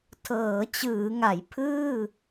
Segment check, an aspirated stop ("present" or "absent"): present